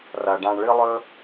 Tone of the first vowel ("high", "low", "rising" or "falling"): low